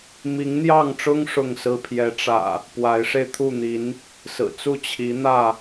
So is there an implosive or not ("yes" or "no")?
no